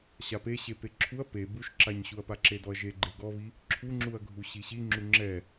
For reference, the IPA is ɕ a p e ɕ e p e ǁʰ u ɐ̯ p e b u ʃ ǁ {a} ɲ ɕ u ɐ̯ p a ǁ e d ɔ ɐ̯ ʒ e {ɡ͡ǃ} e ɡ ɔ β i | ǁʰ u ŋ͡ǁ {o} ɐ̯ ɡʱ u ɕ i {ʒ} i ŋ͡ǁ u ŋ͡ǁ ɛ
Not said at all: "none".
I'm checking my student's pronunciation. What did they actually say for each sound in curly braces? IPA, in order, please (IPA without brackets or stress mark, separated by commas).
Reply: a, ɡ͡ǃ, u, ɕ